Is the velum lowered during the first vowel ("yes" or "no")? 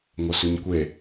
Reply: no